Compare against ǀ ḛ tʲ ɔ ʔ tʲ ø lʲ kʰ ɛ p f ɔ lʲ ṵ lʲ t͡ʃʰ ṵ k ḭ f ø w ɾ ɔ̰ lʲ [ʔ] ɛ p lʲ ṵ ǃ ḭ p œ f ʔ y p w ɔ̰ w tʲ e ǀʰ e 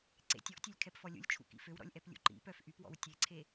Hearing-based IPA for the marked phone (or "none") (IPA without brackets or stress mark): ʔ